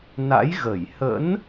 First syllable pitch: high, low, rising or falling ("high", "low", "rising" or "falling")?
rising